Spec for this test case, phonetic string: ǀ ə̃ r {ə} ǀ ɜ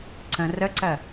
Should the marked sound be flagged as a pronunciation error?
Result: no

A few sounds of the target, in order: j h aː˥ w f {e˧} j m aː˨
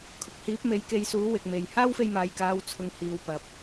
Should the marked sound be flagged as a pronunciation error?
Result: no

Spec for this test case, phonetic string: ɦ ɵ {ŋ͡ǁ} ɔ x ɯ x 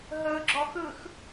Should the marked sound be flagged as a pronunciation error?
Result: yes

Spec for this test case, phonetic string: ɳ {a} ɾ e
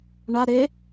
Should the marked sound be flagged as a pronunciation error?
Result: no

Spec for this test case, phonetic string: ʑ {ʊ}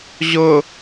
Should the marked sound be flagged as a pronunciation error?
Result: no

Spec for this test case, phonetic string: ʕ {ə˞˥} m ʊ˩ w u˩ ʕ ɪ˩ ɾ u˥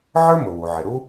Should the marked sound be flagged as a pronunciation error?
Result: no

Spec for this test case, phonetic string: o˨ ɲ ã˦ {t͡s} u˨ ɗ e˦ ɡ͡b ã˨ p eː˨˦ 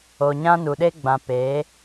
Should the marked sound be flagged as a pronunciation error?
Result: yes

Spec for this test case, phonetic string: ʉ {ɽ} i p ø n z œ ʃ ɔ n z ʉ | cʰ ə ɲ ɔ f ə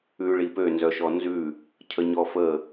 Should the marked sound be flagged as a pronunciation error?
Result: yes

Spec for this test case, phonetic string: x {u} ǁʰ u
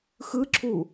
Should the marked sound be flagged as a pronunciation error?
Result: yes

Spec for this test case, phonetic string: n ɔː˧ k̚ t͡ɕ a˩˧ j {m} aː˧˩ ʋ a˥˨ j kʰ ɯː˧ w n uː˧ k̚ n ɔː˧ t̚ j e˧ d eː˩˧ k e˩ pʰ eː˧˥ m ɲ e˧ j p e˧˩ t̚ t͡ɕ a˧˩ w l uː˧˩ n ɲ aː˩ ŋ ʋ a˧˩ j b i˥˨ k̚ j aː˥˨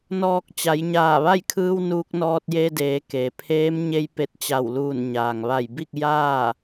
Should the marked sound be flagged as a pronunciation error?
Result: yes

